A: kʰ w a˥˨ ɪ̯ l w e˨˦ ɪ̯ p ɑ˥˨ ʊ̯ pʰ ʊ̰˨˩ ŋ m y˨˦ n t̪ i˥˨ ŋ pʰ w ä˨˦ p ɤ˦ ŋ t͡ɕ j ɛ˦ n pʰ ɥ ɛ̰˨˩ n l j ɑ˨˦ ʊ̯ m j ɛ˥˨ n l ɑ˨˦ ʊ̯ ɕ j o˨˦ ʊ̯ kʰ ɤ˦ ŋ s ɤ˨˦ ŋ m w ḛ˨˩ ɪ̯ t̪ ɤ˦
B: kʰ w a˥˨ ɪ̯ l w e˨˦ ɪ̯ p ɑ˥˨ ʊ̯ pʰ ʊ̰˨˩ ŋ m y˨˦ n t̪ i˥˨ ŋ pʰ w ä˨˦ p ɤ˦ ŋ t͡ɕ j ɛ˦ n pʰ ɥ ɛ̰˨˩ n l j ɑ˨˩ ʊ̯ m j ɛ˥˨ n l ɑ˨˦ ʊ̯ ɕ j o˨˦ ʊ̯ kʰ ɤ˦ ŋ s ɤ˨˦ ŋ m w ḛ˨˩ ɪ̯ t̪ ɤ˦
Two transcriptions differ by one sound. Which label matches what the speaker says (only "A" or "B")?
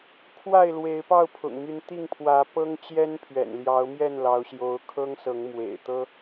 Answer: A